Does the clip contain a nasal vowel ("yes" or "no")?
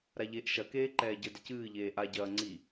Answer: no